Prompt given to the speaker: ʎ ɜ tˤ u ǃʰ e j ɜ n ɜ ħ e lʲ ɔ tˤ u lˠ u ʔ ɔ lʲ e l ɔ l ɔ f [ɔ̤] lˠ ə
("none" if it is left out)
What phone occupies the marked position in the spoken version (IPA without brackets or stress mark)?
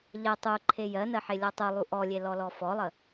ɔ